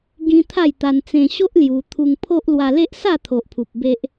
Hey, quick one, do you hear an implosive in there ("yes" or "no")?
no